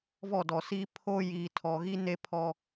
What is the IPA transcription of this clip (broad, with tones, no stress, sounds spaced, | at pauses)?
v ɔ˦˨ d ɔ˨ s iː˦ pʰ o˦ j iː˨ tʰ ɔ˨ ɣ i˦ n e˦ pʰ ɔ˦